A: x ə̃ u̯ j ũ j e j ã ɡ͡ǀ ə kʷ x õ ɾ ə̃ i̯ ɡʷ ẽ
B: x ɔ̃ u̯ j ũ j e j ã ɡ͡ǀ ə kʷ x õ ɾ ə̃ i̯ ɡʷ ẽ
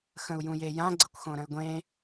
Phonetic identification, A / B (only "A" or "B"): A